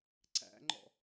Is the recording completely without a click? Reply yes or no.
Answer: no